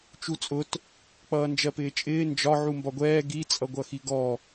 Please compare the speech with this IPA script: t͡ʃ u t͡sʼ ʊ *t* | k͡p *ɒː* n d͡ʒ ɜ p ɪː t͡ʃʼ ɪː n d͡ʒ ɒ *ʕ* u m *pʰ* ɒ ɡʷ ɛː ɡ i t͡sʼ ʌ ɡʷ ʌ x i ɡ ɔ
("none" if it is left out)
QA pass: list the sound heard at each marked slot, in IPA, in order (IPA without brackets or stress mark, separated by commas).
t, ʌː, ʕ, b